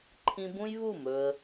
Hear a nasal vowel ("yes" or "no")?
yes